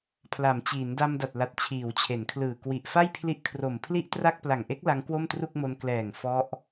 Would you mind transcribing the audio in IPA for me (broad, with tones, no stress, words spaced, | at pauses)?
pʰla˩˦mt͡ɕiː˩˦nda˧m da˨˩t̚la˨˩t̚ t͡ɕʰiː˩˦wt͡ɕʰe˩˦nkʰlɯː˨˩ kwi˨˩ʔfa˥˩j pʰli˦˥ʔkʰro˨˩m pʰli˥˩ʔtra˥˩k̚ pla˨˩ŋʔe˦˥k̚ la˦˥ŋkwo˥˩mtru˥˩k̚mo˧n klɛː˨˩ŋ fɔ˦˥ʔ